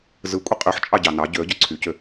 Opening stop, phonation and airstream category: ejective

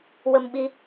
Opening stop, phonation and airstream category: implosive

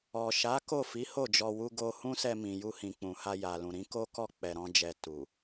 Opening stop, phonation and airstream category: plain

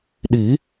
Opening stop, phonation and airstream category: implosive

